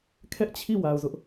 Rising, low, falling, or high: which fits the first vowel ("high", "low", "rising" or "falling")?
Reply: high